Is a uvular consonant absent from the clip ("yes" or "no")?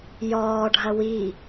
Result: yes